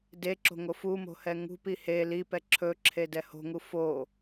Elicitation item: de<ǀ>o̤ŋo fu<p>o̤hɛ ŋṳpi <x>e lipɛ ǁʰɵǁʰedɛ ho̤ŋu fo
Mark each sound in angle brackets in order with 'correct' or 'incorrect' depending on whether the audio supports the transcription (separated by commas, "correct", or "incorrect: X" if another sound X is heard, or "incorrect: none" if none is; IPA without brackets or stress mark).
incorrect: ǁ, incorrect: m, incorrect: h